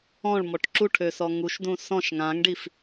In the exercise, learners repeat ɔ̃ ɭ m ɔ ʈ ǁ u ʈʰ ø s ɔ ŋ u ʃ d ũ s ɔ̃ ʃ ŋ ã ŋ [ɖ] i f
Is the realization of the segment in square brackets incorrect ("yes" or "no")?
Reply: no